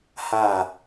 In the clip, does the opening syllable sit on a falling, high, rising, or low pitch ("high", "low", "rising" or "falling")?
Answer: falling